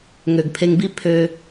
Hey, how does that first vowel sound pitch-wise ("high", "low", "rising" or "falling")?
low